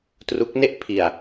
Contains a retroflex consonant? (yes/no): no